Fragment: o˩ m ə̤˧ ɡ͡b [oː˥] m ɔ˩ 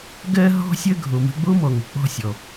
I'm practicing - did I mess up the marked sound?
yes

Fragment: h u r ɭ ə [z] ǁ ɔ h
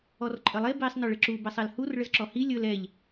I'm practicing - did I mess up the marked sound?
no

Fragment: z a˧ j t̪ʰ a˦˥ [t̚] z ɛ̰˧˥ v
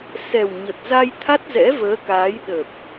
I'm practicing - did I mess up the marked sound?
no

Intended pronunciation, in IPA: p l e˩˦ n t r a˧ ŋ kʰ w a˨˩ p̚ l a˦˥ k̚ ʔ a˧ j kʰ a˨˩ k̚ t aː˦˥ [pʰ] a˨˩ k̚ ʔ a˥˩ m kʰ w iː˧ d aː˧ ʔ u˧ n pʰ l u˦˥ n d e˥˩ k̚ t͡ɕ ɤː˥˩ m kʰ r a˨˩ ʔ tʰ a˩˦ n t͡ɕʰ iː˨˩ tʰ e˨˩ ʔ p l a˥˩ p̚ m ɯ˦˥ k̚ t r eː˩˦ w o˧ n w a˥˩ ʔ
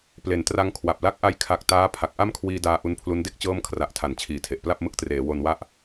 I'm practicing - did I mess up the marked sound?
no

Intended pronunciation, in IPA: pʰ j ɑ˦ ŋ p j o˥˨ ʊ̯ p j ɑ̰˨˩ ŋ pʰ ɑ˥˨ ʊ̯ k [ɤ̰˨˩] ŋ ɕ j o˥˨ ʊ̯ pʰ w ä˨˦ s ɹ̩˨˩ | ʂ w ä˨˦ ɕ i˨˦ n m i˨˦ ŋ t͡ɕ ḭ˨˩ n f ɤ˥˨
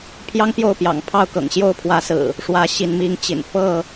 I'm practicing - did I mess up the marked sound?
no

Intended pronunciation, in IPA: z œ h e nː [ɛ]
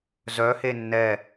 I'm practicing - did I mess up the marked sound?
no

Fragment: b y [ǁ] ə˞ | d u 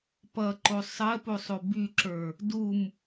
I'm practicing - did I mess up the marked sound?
no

